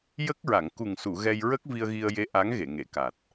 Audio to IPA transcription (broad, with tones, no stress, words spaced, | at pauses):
jə˦˥k̚ɹa˨˩˨ŋ ku˨˩ŋsu˨˩˨ ɣɛ˧jɹə˦˥k̚ vi˧ə̯ɣi˧ə̯je˧˥ ʔa˧˥ŋɣe˨˩˨ŋe˨˩˨ ka˨˩t̚